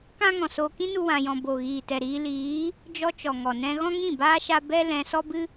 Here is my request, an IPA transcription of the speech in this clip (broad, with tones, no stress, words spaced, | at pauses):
kã˦ŋɔ̃˨ so˧ kĩ˦ nu˦wã˧jɔ̃˧ bo˨ ɣiː˨tɛ˨ɾiː˧liː˨˦ | d͡ʒɔ˦t͡ʃɔ˨ŋɔ˨ nɛ̃˧ ɣɔ̃˦ŋĩ˦˨baː˦ ʃa˦ bɛ˦ lɛ̃˧ sɔ˦bɨ˦